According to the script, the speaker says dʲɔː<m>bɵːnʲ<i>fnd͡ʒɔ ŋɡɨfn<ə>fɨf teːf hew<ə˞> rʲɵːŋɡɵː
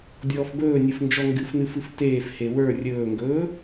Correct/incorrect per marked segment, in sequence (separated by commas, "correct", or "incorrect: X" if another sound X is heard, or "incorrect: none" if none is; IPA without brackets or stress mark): incorrect: f, incorrect: ɨ, incorrect: ɨ, correct